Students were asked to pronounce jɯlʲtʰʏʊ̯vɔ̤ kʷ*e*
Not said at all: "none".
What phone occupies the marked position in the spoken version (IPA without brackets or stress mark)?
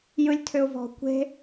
e̤